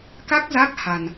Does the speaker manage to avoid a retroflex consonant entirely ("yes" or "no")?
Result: yes